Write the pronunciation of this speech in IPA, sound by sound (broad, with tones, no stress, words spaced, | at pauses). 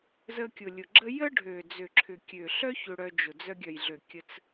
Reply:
zə˧kʲʊ˨lʲʊ˨ɡ͡ǁə˦ jə˦ɖʱø˨ d͡zø˨ǁʰʏ˨kʲø˨ɬœ˦ çø˧ɽœ˧d͡ʒʊ˨ d͡zœ˧ɡʲœ˨jɮø˨ kʲə˧t͡s